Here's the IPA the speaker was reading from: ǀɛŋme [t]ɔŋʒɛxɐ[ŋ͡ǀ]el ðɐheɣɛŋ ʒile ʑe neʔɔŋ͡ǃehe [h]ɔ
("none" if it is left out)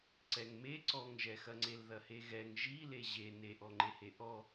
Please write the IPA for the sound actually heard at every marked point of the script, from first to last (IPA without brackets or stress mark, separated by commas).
ǀ, ŋ͡ǀ, ʔ